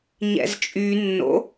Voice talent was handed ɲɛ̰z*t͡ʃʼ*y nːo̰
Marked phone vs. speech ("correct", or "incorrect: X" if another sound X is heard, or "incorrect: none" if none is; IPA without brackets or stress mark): correct